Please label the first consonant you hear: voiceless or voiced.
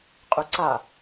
voiceless